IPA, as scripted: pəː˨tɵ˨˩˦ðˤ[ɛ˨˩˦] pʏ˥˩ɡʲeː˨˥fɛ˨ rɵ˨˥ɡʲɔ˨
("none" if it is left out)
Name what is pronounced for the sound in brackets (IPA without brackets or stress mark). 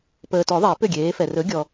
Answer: ɛ˨˩˦